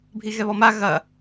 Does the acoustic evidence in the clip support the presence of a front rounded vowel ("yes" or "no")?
no